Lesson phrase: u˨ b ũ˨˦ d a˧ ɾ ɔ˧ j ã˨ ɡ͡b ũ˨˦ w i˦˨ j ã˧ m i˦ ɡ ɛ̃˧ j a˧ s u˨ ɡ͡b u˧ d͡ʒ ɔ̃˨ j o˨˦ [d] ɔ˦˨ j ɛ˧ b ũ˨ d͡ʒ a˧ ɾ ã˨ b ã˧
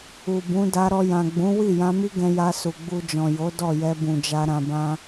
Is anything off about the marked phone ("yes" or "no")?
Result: no